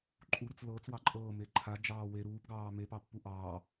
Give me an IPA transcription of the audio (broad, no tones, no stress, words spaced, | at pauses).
ǃʼuɾut͡s lɤːt͡swɑ ǃʼɤːme ǃʰad͡ʒɑː we ɾuːpɡɑː mepɑpːu ʔɑː